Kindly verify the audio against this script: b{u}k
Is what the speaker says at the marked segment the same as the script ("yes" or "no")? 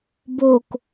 no